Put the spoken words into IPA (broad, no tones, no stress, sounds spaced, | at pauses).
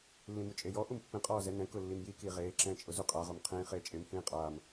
lː ĩ m u t͡ʃʼ e j ɔ ʔ u m pː ĩ qʼ ɔː z ɛ n ɛ̃ k ʊ lː i m j i k iː ʁ eː ǁ ɛ̃ː t͡ʃʼ ʊ z u qʼ a ʁ o m qʰ ĩː χ eː t͡ʃʼ ɪ m h ĩː qʼ aː m